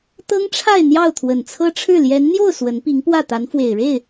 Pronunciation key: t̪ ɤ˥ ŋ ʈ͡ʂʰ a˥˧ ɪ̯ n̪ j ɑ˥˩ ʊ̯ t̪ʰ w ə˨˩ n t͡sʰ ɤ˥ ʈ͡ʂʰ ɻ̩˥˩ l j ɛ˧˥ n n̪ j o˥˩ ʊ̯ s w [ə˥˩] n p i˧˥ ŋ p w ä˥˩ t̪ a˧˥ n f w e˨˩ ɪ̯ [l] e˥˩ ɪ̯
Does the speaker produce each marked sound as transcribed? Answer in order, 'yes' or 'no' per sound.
no, no

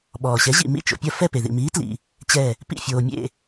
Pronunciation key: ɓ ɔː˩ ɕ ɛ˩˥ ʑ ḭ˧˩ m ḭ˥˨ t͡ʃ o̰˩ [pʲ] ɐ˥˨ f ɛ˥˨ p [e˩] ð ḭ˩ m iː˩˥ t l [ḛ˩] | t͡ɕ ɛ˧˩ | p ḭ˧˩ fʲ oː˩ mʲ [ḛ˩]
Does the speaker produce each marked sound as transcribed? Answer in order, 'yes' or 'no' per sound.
yes, yes, no, no

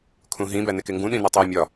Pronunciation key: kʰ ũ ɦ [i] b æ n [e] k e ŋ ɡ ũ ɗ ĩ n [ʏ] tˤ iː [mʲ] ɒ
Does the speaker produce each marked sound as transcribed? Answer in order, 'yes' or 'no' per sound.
no, yes, no, yes

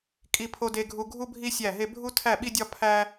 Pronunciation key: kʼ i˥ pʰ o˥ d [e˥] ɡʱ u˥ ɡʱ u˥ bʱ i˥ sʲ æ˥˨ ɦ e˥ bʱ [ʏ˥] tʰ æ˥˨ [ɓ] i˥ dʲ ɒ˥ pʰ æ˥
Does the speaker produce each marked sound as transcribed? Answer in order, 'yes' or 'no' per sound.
yes, no, yes

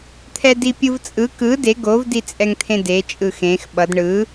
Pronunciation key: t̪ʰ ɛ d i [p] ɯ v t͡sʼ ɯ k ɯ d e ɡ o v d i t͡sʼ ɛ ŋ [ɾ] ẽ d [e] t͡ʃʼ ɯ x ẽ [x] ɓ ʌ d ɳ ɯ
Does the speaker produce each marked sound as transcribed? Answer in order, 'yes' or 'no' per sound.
no, no, yes, yes

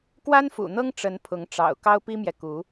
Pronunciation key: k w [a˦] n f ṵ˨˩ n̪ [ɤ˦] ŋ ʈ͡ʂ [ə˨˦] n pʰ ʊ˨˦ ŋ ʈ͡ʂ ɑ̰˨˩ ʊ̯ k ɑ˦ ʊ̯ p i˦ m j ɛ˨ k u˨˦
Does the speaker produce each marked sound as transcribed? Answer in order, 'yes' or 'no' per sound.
yes, yes, yes

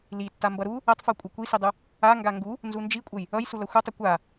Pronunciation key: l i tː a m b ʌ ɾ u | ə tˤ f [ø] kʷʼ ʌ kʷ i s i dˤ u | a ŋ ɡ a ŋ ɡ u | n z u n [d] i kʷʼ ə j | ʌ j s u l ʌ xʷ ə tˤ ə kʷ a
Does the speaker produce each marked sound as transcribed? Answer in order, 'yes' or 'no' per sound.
no, no

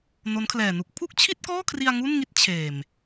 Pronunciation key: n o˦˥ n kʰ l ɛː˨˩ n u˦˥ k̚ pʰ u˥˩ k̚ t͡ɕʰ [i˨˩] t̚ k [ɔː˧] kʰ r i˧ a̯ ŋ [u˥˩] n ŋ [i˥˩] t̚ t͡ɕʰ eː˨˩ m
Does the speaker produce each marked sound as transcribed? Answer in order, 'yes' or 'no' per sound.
no, no, yes, yes

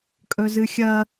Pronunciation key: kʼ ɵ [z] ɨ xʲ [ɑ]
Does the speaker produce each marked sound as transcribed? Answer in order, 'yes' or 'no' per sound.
yes, no

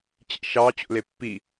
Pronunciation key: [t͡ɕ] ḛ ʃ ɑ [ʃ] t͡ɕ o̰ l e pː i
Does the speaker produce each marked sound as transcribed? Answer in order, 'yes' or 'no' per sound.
yes, no

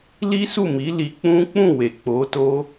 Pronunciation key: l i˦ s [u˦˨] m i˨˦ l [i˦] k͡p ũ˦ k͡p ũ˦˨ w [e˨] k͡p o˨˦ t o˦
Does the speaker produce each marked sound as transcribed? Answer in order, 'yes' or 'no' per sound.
yes, no, yes

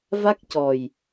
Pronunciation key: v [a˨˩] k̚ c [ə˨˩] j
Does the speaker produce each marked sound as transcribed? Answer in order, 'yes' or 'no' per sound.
no, no

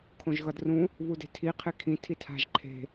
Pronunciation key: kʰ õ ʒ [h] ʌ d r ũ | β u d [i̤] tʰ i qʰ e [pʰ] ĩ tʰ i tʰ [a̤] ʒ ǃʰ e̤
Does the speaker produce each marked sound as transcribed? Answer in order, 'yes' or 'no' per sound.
no, no, no, yes

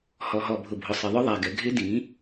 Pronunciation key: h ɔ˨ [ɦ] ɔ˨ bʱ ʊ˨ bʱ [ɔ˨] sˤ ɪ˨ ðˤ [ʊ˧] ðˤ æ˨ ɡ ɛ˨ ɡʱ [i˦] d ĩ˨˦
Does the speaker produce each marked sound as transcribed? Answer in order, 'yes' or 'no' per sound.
yes, no, no, no

